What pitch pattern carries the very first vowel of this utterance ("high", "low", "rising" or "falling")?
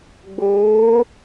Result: rising